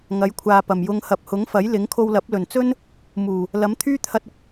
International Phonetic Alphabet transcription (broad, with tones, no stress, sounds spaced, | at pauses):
ŋ ɐ˨˥ j kʷʰ aː˨ p ɐ˨˩ m j ʊ˧ ŋ h ɐ˨ p̚ h ʊ˨˥ ŋ f ɐ˨˥ j l ɪ˨˥ ŋ kʰ o˧ w l ɐ˨˥ p̚ l ɵ˨˩ n t͡s ɵ˥ n | m uː˨˩ | l ɐ˨˥ m t̪ʰ yː˥ t̪ʰ ɐ˧ t̚ ʊ˧ k̚